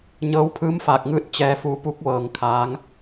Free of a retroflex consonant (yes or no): yes